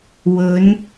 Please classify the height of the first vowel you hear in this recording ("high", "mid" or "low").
mid